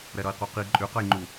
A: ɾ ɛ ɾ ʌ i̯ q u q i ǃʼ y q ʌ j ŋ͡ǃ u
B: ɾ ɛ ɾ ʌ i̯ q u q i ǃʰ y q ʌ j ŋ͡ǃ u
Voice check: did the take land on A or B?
A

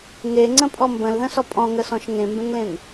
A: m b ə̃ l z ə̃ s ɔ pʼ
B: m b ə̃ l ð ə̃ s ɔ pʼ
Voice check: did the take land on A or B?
B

